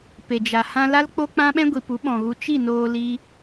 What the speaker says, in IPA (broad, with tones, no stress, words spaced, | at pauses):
pe˨d͡ʒa˨ hã˧la˦l k͡po˦k͡pã˦ɓɛ̃˦ ɡʷi˨pu˨˦ɓɔ̃˨ɣu˧ t͡ʃi˦˨noː˧ li˦